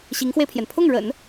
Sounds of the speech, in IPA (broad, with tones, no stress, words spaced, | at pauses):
ɕi˧˥ŋxwe˧ɪ̯pʰjɛ˩n pʰʊ˥˩ŋɻə̰˨˩˦n